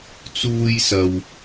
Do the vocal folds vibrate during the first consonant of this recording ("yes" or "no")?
no